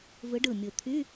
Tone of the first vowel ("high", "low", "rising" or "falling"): rising